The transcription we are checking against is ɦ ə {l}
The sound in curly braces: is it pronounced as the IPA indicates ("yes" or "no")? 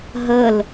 yes